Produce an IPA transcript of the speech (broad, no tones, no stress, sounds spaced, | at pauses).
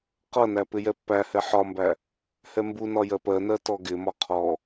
q ʌ n æ p ɪ j ɛ pː æ h ɛ ħ ɒ m b æ | h ɛ m b u n ɒ j ɜ p ɜ n ɜ t ɔ ɡ ɪ m ɒ qʰ ɔ